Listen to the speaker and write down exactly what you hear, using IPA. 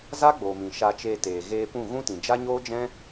za˦ɡ͡boː˨mĩ˨ ʃa˧t͡ʃeː˧teː˨ ɣeː˧pũ˦˨ɣũ˦tĩ˨ d͡ʒa˦ɲoː˦d͡ʒɛ̃˦

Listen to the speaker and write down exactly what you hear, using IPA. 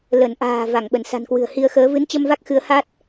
lə˧˩nʔa̤ː˨˩ va˧˩ŋɓə˧˩n sa̤˨˩nkwɨ̤˨˩ə̯ hi˧ə̯xəː˨˦ vɨ˨˦nt͡ɕə˧mva˦˥k̚ xɨ˨˦ə̯ha˦˥t̚

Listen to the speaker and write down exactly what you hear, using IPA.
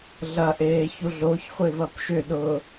ɮɐʔeː çuɮoçχʷev ɐpʃʏɗʊː

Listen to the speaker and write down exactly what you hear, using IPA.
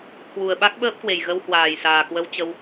kwu˨˩ə̯ɓa˦˥k̚ɓəː˦˥p̚kwe˨˩j ɣə˧w hwaː˨˩jsaː˨˩kwə˧w t͡ɕə˧w

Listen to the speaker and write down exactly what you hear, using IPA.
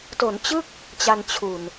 to˩˦nt͡ɕɯ˥˩k̚ | t͡ɕa˧n t͡ɕʰu˨˩n

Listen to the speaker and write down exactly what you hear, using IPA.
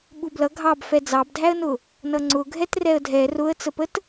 ɓublʌ ɡʱɑbfɛ d͡zɑbdʱæə̯nʊ | nʌŋ͡ǀʊ ɡʱɛtrɛə̯dʱɛ rʊə̯t͡səpət

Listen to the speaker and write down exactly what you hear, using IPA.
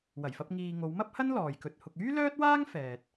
wɐ˨˩jfɐ˧p̚ ŋiː˨ ŋo˨˧wmɐ˥p̚hɐ˥n lɔː˨jkɵ˧t̚hʊ˧k̚ yː˥lœː˥t̚waː˥ŋ fɛː˨t̚

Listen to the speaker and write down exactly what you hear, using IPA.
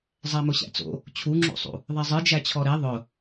zˤæmʊɕæ̰t͡so̰ | t͡ɕʰuŋ͡ǁṵsˤṵ | ðˤezˤɨ d͡ʒæt͡ɕʰɔɾe ðˤʊ

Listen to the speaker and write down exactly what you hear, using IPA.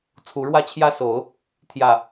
t͡sʰu˨˦ɻwä˥˨t͡ɕʰjä˦so˨˦ʊ̯ | t̪ʰjä˥˨

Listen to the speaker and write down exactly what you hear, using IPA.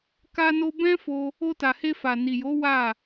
ka˦no˦ bɛ̃˦fo˧ | o˧ta˨he˧ fa˨ni˨jo˨˦ wa˦˨

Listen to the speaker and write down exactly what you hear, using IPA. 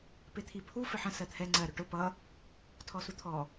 pɪt̪ʰipʰu fɪħə̃ sɜt̪ʰɛ ŋ͡ǀɜ ɾʊʈʊ pʌ | tʰɔsut̪ʰɔ

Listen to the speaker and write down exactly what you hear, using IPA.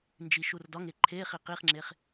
nd͡ʒiʃurdɒŋe ǃʰeχi qiχŋ͡ǁeχ

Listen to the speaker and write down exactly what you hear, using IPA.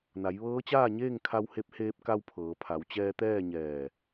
na˩˧jʋɤː˧˥t͡ɕaː˥˨ɲeː˥˨ŋ kʰa˧whe˧p̚heː˧p̚ka˧w pʰɤː˩˧pʰa˩˧w t͡ɕɛː˧t̪ɛː˥˨ɲɛː˧˩

